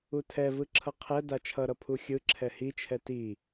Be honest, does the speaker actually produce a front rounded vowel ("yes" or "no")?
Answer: no